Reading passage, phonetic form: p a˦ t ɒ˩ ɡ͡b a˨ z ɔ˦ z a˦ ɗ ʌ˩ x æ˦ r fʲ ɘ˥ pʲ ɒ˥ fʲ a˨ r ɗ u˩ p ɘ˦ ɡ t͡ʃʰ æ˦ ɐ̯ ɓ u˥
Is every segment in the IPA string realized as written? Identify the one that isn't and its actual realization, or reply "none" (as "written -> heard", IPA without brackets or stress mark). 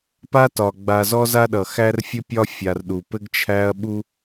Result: none